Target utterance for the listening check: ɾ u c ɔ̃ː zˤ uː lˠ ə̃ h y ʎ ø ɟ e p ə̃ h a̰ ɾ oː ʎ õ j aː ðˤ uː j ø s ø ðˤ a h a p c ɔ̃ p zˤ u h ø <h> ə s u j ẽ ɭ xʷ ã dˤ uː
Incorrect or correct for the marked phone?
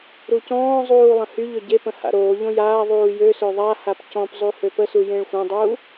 incorrect: p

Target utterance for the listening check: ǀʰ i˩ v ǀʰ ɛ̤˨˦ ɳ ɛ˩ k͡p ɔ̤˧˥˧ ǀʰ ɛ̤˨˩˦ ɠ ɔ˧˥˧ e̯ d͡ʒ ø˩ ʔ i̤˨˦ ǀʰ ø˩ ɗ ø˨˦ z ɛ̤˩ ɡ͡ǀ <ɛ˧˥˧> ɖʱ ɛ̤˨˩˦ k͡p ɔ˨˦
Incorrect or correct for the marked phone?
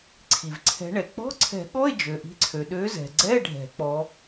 correct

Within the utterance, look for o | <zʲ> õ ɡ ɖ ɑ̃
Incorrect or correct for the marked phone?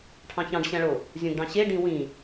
correct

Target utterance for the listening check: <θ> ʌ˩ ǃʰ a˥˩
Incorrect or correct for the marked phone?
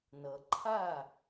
incorrect: n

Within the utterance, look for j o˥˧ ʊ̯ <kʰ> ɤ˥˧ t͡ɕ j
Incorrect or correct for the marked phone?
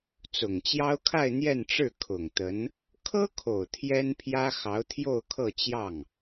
correct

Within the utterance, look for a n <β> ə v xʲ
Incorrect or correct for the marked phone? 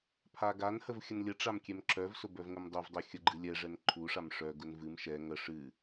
incorrect: h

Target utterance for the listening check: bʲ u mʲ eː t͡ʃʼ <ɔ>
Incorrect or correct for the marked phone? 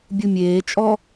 correct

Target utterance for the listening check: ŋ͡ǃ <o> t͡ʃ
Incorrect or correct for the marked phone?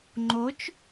correct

